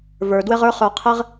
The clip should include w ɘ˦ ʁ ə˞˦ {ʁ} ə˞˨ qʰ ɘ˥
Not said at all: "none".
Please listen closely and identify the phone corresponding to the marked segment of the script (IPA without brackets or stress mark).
χ